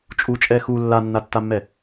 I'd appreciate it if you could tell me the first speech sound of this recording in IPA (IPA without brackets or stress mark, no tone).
t͡ʃʼ